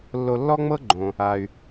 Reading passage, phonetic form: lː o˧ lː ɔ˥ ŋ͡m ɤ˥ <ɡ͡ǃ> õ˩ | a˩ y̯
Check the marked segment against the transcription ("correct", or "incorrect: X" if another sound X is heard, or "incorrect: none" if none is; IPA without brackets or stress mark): correct